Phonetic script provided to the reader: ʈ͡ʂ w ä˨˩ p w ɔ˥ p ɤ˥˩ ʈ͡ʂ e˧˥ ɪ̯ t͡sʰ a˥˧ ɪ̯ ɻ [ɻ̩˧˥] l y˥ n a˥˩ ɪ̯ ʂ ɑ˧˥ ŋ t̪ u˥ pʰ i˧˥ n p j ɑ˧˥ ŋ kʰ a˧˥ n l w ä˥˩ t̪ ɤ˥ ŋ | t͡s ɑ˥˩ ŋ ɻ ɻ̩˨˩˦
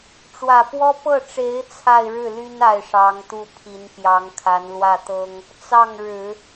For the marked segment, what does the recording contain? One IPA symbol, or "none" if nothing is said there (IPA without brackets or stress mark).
ɻ̩˥˩